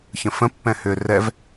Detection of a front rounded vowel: present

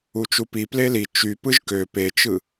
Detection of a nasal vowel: absent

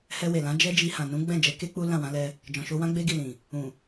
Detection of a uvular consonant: absent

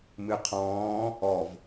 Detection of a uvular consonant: present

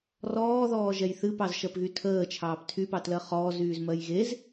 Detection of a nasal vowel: absent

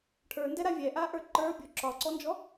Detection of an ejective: absent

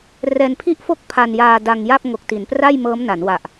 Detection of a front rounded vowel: absent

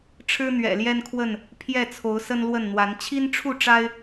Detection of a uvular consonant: absent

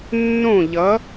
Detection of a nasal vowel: present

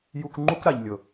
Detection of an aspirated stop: absent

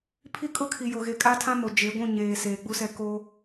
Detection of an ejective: present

